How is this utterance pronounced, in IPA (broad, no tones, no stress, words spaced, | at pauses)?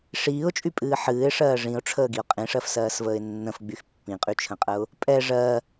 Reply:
ʂiːʊ̯t͡ʃʼypʼɨː ħɨːɪ̯ʂɜː ʐĩʊ̯ʈ͡ʂʰəːɡiʊ̯ qʼĩʂɜfsɜːsvəːɪ̯ nːə̃fɡ͡byx pːĩqʼyt͡ʃʰə̃qʼəʊ̯ | pʼɛ ʐɜ